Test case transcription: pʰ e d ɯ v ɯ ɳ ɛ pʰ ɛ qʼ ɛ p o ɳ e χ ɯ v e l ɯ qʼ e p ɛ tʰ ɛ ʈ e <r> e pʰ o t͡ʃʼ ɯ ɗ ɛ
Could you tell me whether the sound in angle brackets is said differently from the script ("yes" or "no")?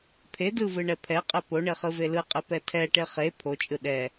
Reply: yes